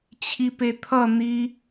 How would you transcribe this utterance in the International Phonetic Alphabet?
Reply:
t͡ɕʰ i p e t̪ʰ ʌ n̪ i

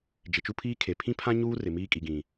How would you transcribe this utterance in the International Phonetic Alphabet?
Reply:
d͡ʒ ɪ˨ t͡ʃ u˦ pʰ iː˦ kʰ e˨ pʰ ĩ˦ pʰ ã˦ ɲ uː˦ r ɪ˨ m iː˦ kʼ i˨ ɡ ĩ˨

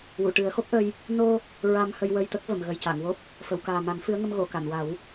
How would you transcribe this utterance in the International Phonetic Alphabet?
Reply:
w u˨˩˨ ʈ ɨ˨˩˦ ə̯ x o˦˥ k̚ ʔ ə˧ j | n o˧ | ɹ a˧ m h ə˧ j w ə˧ j t̪ ə˦˥ k̚ v ə˨˩˨ m ɣ ə˨˩ j c a˨˩˨ ŋ w o˦˥ p̚ | f ə˨˩˨ w k aː˨˩ m a˨˩˦ n f ɨ˧˥ ə̯ ŋ ə˧ m ɣ o˨˩˨ k a˨˩˨ n w a˨˩˦ w

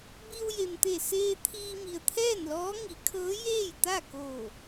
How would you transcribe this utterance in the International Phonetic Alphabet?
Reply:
b i˧ w j e˩ m t̪ e˧˩ s eː˧ t̪ʰ iː˧ m i˩ ə̯ t̪ʰ ɛː˥˨ n l ɔː˧˥ ŋ i˩˧ kʰ ɤː˧˥ j eː˥˨ j t̪ a˥˨ k oː˧˩

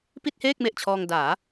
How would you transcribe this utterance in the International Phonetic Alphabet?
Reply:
p i˥˩ t̚ h eː˥˩ k̚ m e˨˩ ʔ t͡ɕʰ ɔː˧ ŋ d aː˩˦

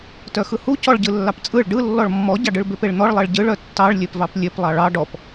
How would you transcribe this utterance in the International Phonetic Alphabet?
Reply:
t œ x ɯ h u c ɔ ɭ ɟ ɯ lː ɑ p t͡sʼ ɯ ɭ ɖ ɯ lː ɔ ɭ mː ɔ ɟ ɑ ɖ ɯ ɭ b e p e ɭ n̪ ɔ ɭ lˠ ɜ ɭ ɟ ɯ ɭ œ tː ɑ ɭ lʲ e p v ɑ p lʲ e p lˠ ɑ ɭ ɑ ɖ ɔ p

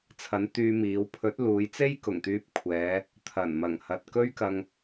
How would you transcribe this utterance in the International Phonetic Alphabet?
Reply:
t͡sʰ ɐ˨˥ n t̪ yː˧ m iː˨˧ w pʰ ɵ˨˥ t̚ l uː˨˧ j t͡s e˥ j k ʊ˨˩ ŋ t̪ yː˧ p̚ kʷʰ ɛː˨˧ | t̪ʰ ɐ˨˩ n m ɐ˨˩ ŋ h ɐ˨ t̚ k ɵ˥ ɥ k ɐ˧ ŋ

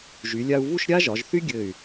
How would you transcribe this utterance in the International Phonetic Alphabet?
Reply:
ʒ y˩˧ lʲ a˧ u̯ v u˥˧ ʃ ɾʲ a˥ ʒ ɒ˩˧ ʒ θ y˥ ɡʲ ɘ˧˩ y̯

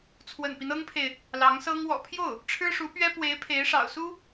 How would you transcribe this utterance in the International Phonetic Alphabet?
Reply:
t͡sʰ w ə̰˨˩ n p i˦ n ɤ˥ ŋ pʰ e˨ ɪ̯ | l ɑ˧˥ ŋ s ɤ˥ ŋ w ɔ̰˨˩ pʰ j o˥˩ ʊ̯ | ʈ͡ʂʰ ɻ̩˥ ʂ u˧˥ p ɥ ɛ˥ p w e˧˥ ɪ̯ pʰ e˧˥ ɪ̯ ʂ ɑ̰˨˩ ʊ̯ s u˥

